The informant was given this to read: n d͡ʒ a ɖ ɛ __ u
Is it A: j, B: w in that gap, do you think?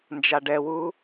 B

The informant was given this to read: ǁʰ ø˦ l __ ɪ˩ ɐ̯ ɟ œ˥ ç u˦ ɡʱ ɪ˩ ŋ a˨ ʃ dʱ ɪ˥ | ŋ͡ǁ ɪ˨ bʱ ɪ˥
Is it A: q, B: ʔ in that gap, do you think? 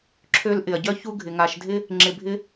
B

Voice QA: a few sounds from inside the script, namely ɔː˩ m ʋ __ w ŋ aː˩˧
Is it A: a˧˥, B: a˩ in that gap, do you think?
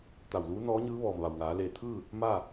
B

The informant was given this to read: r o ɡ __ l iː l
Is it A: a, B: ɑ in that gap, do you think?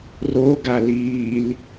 A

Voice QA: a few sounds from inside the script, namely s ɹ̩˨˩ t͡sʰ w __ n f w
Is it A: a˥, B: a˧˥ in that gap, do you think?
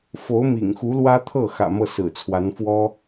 B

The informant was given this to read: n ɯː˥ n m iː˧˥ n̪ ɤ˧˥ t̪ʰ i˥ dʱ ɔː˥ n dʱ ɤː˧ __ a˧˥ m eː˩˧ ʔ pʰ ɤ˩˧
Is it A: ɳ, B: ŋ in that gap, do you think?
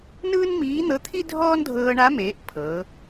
A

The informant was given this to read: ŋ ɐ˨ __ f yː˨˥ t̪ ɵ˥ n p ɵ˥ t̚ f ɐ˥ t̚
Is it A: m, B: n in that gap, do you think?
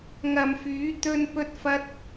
A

